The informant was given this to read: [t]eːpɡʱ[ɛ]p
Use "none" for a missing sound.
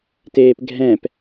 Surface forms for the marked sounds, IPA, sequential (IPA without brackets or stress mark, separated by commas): t, ɛ̃